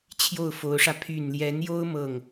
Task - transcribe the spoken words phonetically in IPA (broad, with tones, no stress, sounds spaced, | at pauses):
t͡ɕʰ j o˥˩ ʊ̯ f o˧˥ ʊ̯ ʂ ä˧ pʰ y˨˩ n l j ɛ˧˥ n j o˥ ʊ̯ m ɤ˥˩ ŋ